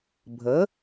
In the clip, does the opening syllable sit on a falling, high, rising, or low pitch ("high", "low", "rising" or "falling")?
rising